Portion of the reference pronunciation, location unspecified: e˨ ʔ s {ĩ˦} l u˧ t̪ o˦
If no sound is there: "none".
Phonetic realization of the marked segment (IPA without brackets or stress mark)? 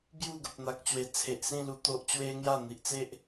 ĩ˥˧